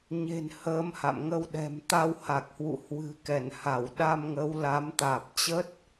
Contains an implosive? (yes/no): yes